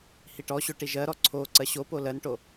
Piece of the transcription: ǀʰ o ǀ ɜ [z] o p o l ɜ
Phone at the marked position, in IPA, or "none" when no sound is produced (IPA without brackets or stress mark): ɕ